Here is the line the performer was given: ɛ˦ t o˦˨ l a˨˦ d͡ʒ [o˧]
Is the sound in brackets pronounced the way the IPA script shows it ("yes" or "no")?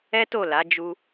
no